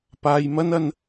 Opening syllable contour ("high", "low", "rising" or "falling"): low